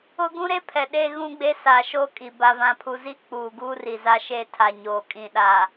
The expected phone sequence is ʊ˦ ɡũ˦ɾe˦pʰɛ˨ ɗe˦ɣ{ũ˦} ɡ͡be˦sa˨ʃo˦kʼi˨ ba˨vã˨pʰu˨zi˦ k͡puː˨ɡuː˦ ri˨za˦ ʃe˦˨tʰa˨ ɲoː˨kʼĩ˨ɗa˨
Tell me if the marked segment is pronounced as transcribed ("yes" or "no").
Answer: yes